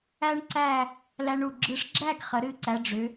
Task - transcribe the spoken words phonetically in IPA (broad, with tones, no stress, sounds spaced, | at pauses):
æ˥ ɳ ǀ æ˥˧ | l æ˧ ɳ u˧˩ ɡ͡ǁ ɨ˧ ʂ ɡ͡ǁ æ˥˧ ɡ χ ə˩˧ ɾ ɨ˧˩ ǀ æ˩˧ ɖ͡ʐ ʏ˩˧